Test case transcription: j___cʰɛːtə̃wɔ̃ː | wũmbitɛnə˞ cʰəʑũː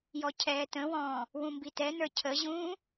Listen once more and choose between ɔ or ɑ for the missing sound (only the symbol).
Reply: ɔ